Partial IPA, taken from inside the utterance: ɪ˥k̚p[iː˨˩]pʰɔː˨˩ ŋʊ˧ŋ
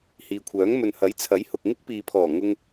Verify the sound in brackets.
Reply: incorrect: iː˨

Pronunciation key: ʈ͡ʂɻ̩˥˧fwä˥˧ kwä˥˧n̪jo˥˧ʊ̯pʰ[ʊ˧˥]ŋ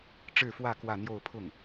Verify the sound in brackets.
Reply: incorrect: ʊ˥˩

